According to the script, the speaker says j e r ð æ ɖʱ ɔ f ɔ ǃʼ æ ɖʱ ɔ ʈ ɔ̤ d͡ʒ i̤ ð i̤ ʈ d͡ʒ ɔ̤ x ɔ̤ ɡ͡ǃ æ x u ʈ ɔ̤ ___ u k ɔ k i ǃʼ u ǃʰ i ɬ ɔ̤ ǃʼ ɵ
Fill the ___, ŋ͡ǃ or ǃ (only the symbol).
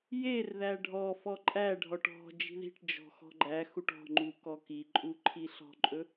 ŋ͡ǃ